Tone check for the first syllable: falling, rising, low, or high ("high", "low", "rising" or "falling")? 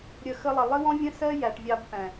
low